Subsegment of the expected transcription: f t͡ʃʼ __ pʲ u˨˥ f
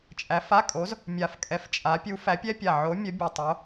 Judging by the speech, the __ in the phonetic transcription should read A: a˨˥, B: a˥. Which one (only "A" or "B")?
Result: A